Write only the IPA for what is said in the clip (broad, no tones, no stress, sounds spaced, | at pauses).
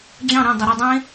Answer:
d͡ʑ ɑ̃ ɾ ẽ dˤ o ɾ y dˤ ẽ